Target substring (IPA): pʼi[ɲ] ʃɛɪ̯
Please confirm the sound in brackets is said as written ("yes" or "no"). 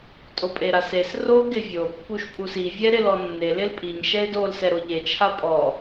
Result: yes